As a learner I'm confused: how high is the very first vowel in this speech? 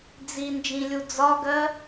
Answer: high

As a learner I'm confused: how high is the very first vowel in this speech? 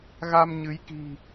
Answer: low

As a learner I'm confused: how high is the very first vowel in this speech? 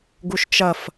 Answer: high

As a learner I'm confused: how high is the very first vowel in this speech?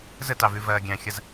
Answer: mid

